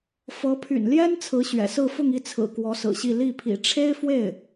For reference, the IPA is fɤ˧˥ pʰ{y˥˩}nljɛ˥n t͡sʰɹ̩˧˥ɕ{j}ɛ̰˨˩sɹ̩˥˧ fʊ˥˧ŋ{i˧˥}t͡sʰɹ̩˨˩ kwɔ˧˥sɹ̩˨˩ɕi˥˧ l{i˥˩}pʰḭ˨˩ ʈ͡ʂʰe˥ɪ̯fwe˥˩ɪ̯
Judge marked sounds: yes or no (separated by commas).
no, no, no, yes